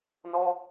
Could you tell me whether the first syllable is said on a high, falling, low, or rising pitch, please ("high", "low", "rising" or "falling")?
high